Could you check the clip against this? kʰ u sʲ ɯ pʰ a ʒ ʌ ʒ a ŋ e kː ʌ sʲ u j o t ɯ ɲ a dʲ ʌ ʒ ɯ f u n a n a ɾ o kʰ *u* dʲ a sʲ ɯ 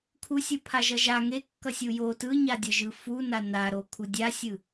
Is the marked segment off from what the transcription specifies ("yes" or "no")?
no